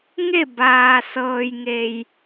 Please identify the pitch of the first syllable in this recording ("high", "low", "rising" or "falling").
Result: falling